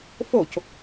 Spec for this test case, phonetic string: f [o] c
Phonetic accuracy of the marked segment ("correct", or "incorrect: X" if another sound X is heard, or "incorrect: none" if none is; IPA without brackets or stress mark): correct